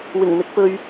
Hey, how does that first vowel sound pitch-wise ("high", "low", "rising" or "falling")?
low